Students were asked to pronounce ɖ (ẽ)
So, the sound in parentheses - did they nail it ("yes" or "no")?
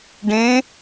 yes